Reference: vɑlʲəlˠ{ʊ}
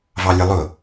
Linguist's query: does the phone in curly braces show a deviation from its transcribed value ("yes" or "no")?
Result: no